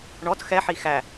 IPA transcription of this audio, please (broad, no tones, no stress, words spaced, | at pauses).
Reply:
ɳɔt xɛħi xæ